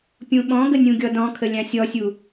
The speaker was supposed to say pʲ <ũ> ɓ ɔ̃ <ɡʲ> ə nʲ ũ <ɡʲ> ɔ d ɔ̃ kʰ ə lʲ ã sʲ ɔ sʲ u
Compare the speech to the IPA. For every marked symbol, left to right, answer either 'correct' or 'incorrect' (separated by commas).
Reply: correct, incorrect, correct